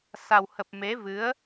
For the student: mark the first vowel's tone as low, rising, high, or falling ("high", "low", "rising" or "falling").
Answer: low